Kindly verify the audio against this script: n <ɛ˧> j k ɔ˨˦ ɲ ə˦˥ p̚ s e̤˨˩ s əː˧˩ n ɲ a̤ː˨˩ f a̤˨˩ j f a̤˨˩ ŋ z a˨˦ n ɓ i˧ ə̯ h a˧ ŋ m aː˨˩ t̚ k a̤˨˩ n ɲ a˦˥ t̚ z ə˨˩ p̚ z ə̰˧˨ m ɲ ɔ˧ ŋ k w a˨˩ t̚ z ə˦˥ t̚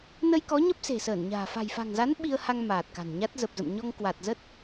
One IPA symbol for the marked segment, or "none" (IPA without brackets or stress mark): ə˧